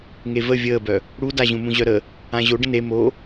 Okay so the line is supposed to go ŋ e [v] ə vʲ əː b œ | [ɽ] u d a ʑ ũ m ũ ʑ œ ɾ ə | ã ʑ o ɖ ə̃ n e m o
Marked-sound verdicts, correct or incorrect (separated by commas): correct, correct